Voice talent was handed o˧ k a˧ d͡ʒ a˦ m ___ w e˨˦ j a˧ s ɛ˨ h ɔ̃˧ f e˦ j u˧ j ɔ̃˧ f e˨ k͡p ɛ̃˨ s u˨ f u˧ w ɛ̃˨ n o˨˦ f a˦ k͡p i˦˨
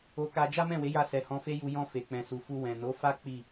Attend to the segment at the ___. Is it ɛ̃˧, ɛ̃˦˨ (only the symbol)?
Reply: ɛ̃˦˨